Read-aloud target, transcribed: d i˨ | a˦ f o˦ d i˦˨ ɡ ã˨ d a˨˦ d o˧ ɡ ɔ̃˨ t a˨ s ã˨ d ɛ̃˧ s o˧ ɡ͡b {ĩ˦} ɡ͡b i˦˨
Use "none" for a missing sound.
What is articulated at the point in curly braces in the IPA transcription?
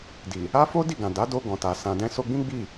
ĩ˦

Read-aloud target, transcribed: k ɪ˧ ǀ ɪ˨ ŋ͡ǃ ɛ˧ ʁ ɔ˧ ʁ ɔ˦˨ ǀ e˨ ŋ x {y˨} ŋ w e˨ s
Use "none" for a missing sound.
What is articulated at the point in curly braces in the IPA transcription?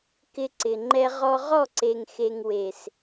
e˨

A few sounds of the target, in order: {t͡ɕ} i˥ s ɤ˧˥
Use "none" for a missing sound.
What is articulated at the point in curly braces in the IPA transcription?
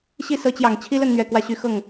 ɕ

